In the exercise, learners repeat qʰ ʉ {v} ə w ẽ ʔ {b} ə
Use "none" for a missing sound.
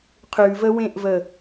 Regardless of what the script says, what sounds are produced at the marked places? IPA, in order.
v, v

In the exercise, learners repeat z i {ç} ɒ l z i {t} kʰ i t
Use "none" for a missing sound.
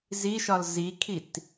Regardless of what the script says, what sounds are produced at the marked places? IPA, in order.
ʃ, none

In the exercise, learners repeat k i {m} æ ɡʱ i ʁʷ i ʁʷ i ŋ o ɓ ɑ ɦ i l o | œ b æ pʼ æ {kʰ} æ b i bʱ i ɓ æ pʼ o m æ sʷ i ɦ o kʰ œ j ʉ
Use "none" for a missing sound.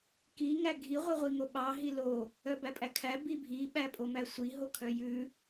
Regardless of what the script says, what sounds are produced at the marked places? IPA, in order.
ŋ, kʰ

